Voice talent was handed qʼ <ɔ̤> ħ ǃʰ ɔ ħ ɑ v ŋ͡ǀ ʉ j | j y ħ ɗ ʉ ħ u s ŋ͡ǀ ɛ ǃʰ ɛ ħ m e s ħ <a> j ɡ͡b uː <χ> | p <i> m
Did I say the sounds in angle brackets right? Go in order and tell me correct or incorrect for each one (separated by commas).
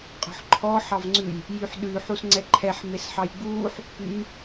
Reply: correct, incorrect, incorrect, incorrect